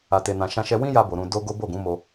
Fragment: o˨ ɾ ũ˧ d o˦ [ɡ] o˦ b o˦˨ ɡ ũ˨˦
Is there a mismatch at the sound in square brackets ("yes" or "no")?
no